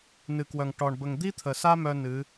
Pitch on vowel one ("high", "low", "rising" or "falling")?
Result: low